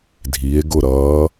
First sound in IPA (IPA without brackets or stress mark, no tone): dʱ